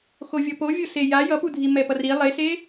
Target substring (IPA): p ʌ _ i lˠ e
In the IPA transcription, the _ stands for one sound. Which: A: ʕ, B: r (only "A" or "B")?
B